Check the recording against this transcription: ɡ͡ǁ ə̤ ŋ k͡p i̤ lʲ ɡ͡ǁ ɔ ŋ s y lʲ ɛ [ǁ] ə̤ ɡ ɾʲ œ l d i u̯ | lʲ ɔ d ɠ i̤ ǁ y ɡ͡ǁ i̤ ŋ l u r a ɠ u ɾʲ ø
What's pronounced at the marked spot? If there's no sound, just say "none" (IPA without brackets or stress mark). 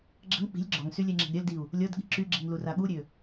ŋ͡ǁ